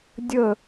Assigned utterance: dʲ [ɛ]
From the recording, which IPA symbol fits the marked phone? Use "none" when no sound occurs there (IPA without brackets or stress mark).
ə